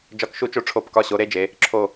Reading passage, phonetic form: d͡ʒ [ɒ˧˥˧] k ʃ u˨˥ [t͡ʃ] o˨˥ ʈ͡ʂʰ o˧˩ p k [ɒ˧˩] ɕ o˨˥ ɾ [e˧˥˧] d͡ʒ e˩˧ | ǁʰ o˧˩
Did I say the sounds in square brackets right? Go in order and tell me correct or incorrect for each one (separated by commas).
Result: incorrect, correct, correct, correct